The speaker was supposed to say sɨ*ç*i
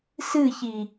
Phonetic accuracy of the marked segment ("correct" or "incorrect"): correct